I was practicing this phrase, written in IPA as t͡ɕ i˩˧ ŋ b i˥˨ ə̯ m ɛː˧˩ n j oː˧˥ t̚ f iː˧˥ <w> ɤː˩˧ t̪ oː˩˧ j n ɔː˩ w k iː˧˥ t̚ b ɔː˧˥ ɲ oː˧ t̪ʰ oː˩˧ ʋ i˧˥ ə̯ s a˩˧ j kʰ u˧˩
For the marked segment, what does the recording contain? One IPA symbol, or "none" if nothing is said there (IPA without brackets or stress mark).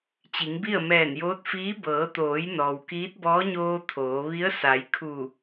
b